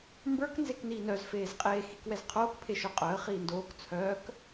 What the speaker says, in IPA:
m b ə˞ k n z e k n iː n œ z f eː z qʼ eː x i k w ɛ z qʰ oː k pʰ e ʃ œ qʼ œ ə̯ χ iː n d oː k t͡sʰ œː k

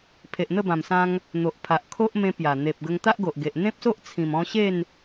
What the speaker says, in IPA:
pʰ e˨ ʔ n̪ ə˥˧ b ã˨˩ m s ã˧ ŋ | n̪ o˨ ʔ pʰ a˨ ʔ kʰ o˦ ʔ m ẽ˧ p j a˨˩ n̪ e˨ p̚ ɡ ə˧ ŋ t̪ a˦ ʔ ɡ o˨ ʔ ɡ e˨ ʔ n̪ ẽ˦ p̚ s o˦ ʔ t͡sʰ ĩ˨˩ m ɔ̃˧ ɕ e˥˧ n

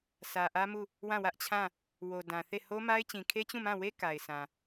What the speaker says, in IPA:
sʰ ä˨ ʔ ä˦ m u˦˨ | w ã˦˨ w ä˦ ʔ t͡ɕʰ ã˦˨ | w o˨ d ã˨ θ e˦˨ h o˦ m a˦ ɪ̯ t͡ɕ ĩ˨ kʰ e˦ t͡ɕ ũ˦˨ m ã˦˨ w e˦ k a˨ ɪ̯ s ã˨

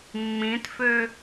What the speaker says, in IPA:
mː ĩ t f ø

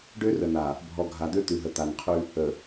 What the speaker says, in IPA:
ɖ ø˦ r ə˨ n a˨ | bʱ ɔ˨ ɡʱ a˨ d̪ ø˦ t̪ ʉ˨ ɦ ə˨ t̪ a˨ n qʰ ʉ˦ | ə˨

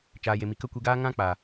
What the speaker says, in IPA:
t͡ʃ aː˨ j e˨ m i˨ k ə˦˨ kʷ i˧ ɡ aː˦ ŋ ã˦ k͡p a˨

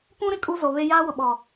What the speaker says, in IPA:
p ũ˦ ɾ ɪ˨ kʼ u˦ z o˨ β e˦ j aː˦ w ʊ˨ ɓ ɔ˨

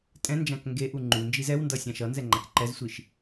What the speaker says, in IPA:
tʼ ɛ̃ n d͡ʒ ã k ŋ ɡ e ʔ u ŋ͡ǃ u n d͡ʒ i z ɛ w n d ʌ sʲ ã ʃ ʌ n z ɛ ŋ͡ǃ a k ǃ ɛ z sʷ i ʃ

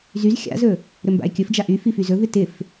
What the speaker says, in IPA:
z y z xʲ a̰ z ɵ | ɾ ɵ m b a̰ e̯ kʲ ɵ f d͡ʒ a ʔ y f i f y z ɵ v ɪ t ɪ f

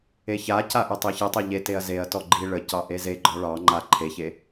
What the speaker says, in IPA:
e ç a c a ʔ e tˤ i ç i tˤ e ʎ e t e ɐ̯ z e ɐ̯ t ɔ ɡ͡ǃ i ɭ ə c ɑ ʔ e z e ɡ͡ǃ ɔ ɭ ɑ ŋ͡ǃ a ǃʰ e ç e

